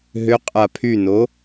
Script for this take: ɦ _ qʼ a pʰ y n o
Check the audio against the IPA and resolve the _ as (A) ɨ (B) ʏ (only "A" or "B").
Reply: B